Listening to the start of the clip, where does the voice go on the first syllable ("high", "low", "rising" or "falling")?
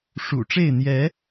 low